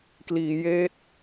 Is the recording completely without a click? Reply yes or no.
yes